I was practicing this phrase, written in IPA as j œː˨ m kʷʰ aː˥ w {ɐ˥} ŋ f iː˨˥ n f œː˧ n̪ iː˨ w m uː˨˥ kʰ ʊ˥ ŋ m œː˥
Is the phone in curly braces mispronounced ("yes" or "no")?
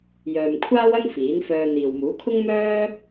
no